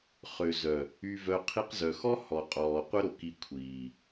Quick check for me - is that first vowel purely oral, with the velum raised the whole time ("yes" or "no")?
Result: yes